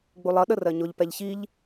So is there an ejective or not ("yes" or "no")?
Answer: no